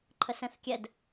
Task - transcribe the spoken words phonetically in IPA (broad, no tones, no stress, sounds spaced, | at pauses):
ǃʰ ə s ɛ̃ θ kʲ ɛ d